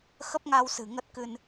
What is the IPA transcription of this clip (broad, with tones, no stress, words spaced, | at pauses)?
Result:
xə˦˥p̚ŋa˧wsɨ̤˨˩ ŋə˦˥t̚kɨ˧n